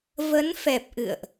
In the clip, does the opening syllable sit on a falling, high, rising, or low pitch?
rising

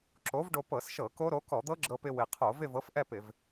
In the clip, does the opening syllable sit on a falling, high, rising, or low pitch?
rising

